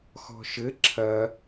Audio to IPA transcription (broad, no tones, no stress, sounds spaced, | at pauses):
x ɔ̤ ʃ ɘ ǁʰ ɐ